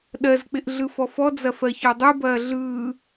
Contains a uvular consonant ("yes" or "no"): no